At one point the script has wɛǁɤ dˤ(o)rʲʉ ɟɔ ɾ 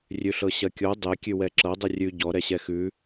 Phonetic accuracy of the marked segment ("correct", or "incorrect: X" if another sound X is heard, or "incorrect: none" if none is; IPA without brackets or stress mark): correct